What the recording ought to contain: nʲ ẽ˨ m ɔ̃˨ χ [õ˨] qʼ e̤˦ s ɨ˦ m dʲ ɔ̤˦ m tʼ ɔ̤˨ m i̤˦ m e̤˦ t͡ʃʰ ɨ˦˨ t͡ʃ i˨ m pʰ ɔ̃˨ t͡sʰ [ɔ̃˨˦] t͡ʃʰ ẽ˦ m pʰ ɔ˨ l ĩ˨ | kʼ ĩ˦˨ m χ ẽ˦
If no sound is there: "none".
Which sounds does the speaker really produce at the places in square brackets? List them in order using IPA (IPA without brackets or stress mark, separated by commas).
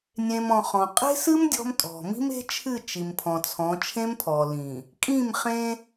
ɔ̃˨, ɔ̃˨˦